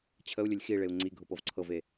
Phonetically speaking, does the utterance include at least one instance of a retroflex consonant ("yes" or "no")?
yes